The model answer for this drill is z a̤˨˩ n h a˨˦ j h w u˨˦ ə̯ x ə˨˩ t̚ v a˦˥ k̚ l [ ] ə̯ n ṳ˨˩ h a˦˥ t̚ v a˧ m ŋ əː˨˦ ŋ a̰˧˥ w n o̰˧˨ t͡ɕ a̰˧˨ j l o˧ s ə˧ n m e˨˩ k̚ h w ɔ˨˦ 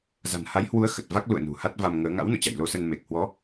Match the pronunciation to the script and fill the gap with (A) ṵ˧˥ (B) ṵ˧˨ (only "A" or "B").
B